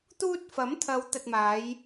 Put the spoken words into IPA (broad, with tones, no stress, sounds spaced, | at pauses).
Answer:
t̪ uː˧ t̚ f ɐ˨˥ m t̪ʰ ɐ˨˧ w t̪ ɐ˨ t̚ m aː˨˧ j